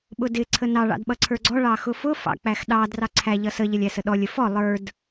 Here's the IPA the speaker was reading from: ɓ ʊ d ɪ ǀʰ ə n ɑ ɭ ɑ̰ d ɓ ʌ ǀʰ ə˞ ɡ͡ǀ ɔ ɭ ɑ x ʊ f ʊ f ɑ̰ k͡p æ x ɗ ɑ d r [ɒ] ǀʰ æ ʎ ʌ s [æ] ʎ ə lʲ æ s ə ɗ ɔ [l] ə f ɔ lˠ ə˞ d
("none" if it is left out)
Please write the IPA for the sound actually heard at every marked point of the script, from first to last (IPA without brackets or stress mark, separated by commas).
ɑ, ə, lʲ